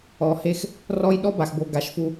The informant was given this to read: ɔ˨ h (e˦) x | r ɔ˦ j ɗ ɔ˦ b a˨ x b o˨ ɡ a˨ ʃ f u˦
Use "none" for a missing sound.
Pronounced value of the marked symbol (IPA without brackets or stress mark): e˦